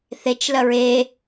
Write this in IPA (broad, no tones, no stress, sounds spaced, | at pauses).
θ e t͡ʃ l ɐ ɹ e